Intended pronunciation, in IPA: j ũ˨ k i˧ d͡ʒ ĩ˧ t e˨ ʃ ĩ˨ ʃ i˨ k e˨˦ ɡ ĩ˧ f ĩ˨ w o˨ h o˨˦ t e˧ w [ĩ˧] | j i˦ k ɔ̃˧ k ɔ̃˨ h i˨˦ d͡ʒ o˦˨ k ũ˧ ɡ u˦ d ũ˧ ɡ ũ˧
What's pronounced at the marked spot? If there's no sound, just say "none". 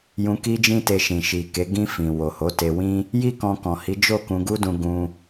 ĩ˦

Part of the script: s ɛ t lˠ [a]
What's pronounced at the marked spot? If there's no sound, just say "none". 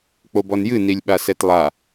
a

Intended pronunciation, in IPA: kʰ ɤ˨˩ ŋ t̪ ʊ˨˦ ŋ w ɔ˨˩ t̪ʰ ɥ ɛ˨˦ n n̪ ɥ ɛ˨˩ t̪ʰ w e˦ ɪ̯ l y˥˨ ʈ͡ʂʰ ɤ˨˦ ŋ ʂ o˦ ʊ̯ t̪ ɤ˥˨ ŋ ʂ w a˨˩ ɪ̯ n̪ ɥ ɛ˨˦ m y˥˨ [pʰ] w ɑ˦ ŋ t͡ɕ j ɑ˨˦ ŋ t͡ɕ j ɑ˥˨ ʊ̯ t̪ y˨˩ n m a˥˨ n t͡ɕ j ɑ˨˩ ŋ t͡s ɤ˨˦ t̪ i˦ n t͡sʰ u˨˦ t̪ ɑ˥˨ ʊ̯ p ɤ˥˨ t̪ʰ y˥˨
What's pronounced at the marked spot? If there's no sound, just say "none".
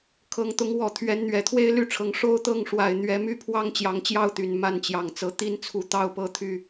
pʰ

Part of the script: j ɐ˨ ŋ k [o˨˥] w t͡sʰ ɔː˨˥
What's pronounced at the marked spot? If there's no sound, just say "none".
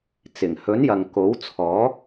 o˨˥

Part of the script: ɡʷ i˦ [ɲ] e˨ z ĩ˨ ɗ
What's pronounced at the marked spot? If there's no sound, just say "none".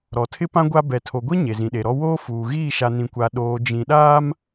ɲ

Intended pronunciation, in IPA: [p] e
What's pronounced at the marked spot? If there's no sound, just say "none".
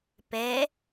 p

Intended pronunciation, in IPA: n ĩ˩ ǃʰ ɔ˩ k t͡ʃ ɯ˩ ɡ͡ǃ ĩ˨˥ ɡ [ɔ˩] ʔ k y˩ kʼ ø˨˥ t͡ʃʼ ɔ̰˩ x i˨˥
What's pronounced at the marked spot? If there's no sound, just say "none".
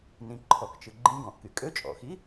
ɔ̃˩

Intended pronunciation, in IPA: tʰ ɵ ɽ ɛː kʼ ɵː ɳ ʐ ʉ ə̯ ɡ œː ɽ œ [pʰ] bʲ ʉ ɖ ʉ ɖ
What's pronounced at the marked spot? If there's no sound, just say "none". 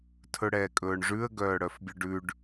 f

